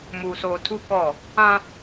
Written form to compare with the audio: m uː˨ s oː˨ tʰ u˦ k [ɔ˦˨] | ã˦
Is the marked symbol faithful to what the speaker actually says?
yes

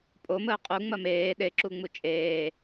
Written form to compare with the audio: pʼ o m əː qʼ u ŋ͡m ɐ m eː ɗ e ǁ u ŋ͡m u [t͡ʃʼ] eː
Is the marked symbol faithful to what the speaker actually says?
yes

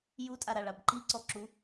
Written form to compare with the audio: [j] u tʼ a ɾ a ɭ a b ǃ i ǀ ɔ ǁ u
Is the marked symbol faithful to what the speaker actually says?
yes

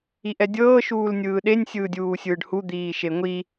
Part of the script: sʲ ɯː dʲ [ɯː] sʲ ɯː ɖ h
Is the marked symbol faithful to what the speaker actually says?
no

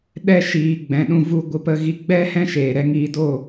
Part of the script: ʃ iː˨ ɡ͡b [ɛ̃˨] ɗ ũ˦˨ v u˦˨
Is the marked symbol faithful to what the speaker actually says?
yes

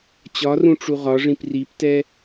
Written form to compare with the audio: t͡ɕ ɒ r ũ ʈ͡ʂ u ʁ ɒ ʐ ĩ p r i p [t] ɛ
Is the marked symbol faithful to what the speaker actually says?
yes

